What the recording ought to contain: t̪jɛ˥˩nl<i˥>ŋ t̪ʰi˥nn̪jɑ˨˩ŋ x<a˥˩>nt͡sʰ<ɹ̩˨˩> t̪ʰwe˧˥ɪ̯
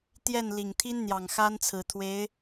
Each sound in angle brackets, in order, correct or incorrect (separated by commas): incorrect, incorrect, correct